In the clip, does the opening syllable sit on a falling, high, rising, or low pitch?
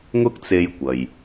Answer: high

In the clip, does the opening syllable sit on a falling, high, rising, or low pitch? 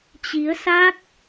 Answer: rising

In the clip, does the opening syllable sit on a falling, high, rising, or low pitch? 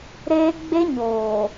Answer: high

